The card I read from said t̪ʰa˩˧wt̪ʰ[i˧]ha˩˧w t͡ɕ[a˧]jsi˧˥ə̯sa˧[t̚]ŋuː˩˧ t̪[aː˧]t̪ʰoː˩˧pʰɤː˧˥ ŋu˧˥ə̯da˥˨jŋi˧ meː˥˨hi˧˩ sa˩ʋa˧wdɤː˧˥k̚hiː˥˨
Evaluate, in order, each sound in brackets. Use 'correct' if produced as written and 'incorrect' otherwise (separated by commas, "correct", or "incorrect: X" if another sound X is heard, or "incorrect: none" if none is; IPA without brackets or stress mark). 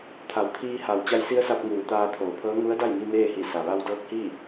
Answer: incorrect: iː˧, correct, incorrect: p̚, correct